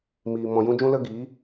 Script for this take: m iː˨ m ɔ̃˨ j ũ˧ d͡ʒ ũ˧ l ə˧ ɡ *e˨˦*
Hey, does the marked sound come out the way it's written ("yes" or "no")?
no